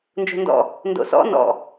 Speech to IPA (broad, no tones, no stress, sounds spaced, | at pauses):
n d͡ʒ o̤ n d ɔ̰ | n d o̰ s ɔ̰ n ɔ̰